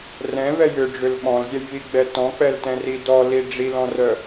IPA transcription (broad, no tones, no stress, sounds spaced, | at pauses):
r ɛ̃ v ɛ j ʏ ɖ͡ʐ ʏ l ɓ ɔ̃ l zʲ ɛ j β i ɡ͡b ɛ t ɔ̃ k͡p ɛ l t ɛ̃ r i d ɔ l i ɖ͡ʐ i l ɔ̃ r œ